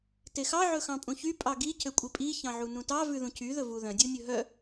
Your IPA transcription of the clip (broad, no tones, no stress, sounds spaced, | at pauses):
t e x ɑ ʕ ɵ x ɑ̃ pʼ ũ ç y pʼ ɑ ɡ i cʰ ø kʷʼ i pʼ i ç ɑ̃ ʕ u n ũ t ɑ v ʉ ð ũ cʰ y ð ɵ v u ð œ̃ dʲ u nʲ ɵ ɦ œ